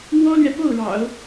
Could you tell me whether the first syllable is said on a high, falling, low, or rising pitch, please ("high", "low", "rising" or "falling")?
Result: high